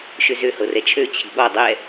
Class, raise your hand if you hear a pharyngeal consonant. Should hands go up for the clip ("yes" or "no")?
no